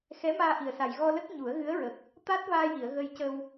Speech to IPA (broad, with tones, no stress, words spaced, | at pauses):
xɛ˧˥maː˧ʔi˨˩ə̯sa˨˩j ɣɔ˧lə˦˥k̚ ɲu˨˩˦ə̯ɣɨ˧˥ə̯ɹə˨˩k̚ | t̪a˦˥t̚vaː˧ji˨˩˨ə̯ ɣə˧jcə˧w